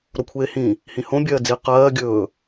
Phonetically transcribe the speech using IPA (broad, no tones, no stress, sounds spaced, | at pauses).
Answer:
ɾ o kʷʰ eː h ĩ | h ĩ h õ bʲ ɜː d͡z i q ɜː ɡʲ ɵː